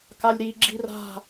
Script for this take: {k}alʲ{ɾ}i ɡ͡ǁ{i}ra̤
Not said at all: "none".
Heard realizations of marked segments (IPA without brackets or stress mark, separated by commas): k, ɾ, i